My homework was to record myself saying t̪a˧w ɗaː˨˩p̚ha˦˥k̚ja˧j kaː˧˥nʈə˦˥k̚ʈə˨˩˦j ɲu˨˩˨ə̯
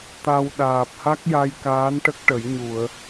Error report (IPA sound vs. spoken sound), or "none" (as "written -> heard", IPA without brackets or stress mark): none